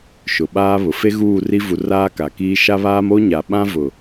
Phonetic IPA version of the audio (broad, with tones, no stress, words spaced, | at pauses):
ʃʊ˨ɓaː˦βʊ˨ fe˦ɣuː˦˨ri˦ vu˨r aː˦ka˨kiː˦ ʃa˦βaː˦m o˦ɲa˨ɓã˦ vʊ˨